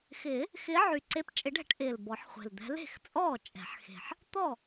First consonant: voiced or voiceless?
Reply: voiceless